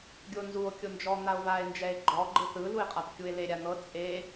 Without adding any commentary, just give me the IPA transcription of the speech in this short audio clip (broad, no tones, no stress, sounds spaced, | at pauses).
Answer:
ɡʲ o n z u o̯ kʲ o n d͡ʒ ɔ n̪ a o̯ v a e̯ n d͡ʒ ɛ e̯ ɡ͡ǃ ɔ ɡ͡ǃ ɯ θ ɯ l u e̯ qʼ a p kʲ u e̯ l e ɾʲ a n̪ ɤ t͡sʼ e